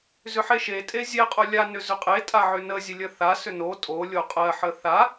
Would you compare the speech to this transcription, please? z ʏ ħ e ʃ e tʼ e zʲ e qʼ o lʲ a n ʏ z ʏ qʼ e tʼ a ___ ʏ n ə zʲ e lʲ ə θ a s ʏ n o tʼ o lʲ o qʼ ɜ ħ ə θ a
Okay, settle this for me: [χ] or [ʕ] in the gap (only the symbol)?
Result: ʕ